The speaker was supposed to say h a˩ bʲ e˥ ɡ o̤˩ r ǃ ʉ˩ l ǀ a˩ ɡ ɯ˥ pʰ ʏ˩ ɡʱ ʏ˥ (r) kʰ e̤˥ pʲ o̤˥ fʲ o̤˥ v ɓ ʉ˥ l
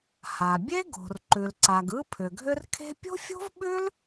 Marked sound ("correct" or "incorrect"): correct